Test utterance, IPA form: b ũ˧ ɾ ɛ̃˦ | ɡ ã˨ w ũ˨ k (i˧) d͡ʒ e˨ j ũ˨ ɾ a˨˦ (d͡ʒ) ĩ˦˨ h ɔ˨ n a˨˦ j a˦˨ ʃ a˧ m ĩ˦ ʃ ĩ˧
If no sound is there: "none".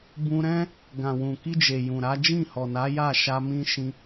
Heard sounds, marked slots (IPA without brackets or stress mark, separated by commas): i˧, d͡ʒ